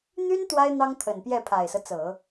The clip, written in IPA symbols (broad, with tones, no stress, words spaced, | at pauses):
n̪y˥n t̪wa˥ɪ̯ n̪ɑ˥ŋt̪ʰə˨˩npjɛ˥˩ pʰa˨˩ɪ̯sɤ˦ t͡sɤ˨˩˦